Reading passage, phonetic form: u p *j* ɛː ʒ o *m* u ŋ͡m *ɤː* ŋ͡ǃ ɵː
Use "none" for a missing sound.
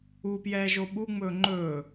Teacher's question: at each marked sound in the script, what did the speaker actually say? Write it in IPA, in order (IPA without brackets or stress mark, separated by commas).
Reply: j, ɓ, ɵː